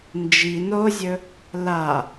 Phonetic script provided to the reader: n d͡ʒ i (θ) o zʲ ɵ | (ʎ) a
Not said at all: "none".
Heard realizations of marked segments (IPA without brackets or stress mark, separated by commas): n, l